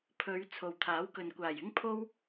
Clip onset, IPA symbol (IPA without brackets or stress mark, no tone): pʰ